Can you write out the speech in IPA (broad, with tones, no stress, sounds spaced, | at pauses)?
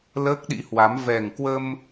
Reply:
l əː˦˥ k̚ ɗ ḭ˧˥ h w a˨˦ m v ɛ˨˩ ŋ k w ə˧ m